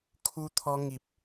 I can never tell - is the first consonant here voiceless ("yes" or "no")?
yes